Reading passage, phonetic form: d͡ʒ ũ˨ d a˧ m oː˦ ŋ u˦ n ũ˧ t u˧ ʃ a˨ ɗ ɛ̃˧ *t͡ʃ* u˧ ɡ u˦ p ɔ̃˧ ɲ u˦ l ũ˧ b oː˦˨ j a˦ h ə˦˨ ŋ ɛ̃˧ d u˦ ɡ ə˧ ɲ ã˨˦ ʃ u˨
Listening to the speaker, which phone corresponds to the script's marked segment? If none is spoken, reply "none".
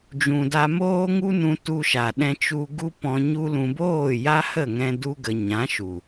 t͡ʃ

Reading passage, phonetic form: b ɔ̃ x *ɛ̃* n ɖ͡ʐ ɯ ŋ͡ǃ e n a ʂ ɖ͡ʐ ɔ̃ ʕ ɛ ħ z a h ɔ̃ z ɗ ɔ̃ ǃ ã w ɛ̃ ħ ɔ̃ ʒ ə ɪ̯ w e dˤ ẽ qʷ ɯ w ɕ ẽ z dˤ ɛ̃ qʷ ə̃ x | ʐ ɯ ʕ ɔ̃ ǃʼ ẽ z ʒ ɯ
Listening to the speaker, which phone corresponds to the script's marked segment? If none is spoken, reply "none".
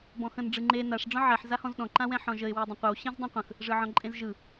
ə̃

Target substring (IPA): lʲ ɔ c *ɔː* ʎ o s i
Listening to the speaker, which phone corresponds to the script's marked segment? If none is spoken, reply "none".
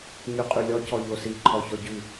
ɔ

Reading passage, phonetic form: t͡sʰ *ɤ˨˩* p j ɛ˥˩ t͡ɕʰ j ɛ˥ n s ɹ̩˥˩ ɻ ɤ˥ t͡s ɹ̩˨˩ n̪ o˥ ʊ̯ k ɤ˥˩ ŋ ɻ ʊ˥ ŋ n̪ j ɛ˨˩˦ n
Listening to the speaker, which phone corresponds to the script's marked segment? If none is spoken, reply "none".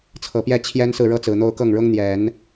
ɤ˨˩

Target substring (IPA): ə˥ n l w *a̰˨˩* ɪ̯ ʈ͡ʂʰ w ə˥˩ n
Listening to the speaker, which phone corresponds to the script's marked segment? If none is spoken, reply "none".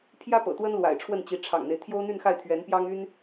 a̰˨˩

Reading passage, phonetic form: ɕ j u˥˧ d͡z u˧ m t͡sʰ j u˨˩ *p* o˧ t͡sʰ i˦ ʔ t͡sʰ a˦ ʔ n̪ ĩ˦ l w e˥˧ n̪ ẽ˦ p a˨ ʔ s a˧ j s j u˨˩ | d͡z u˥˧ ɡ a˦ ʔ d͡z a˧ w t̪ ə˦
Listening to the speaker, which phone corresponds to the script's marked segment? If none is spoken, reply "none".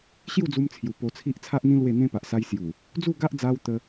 p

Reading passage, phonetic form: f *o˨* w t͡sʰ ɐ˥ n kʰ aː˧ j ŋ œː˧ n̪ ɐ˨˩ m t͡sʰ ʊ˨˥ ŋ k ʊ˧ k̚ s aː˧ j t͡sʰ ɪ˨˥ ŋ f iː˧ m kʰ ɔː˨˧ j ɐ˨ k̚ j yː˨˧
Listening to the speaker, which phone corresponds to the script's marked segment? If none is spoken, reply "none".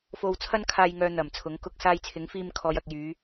o˧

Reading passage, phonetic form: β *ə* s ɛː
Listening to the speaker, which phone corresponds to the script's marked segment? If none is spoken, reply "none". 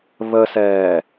ə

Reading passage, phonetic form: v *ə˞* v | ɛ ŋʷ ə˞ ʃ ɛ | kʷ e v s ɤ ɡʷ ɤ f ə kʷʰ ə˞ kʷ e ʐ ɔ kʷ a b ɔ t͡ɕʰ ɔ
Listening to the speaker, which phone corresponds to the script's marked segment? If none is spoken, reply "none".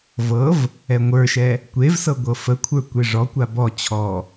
ɤ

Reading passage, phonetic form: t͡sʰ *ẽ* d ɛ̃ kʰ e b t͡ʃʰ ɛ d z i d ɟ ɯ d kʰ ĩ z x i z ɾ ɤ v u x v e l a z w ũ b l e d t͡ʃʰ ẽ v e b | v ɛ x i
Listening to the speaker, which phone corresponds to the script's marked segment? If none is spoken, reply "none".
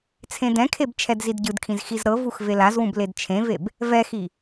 ẽ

